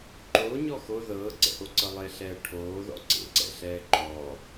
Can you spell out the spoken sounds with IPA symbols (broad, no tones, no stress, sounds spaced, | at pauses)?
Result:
ǃ oː ɲ ɔ x o ð ɤː ǀ ɛ̰ ʔ o ǀ ɤ lˠ e ɬ ɛː ʈʰ oː ð ɔ̰ ǀ ḛ ǀ ɛ̰ ɬ ɛː ǃ ɔ